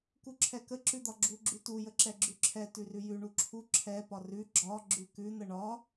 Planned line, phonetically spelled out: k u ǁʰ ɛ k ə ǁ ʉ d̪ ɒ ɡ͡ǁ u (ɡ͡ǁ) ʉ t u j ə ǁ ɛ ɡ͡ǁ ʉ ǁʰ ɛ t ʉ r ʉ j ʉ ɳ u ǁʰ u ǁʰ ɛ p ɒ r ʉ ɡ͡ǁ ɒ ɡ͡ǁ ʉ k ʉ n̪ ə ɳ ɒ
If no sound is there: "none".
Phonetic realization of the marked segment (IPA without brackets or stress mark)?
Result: ɡ͡ǁ